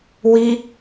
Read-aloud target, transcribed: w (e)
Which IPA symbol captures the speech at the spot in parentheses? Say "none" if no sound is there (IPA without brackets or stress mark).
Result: i